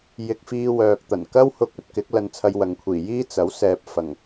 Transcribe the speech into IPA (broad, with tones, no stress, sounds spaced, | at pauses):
j ɪ˧ k̚ f iː˧ w œː˨ k̚ t̪ ɐ˨˩ n k ɐ˥ w h ʊ˧ k̚ ɵ˧ t̚ k ɪ˨˥ k̚ l ɐ˧ n t͡sʰ ɐ˧ j w ɐ˨ ŋ kʷʰ iː˨˩ j iː˥ t͡s ɐ˨˥ w s ɛː˨ p̚ f ɐ˨˩ ŋ